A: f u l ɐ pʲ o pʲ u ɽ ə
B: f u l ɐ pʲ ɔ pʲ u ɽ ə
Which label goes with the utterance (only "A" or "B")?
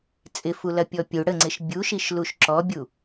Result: B